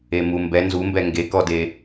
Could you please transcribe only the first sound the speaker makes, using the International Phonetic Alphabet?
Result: e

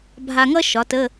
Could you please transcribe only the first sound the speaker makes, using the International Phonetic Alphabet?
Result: bʱ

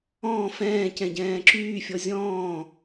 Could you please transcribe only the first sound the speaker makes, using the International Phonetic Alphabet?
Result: ɔ̃ː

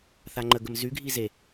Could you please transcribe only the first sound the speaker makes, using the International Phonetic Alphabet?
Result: θ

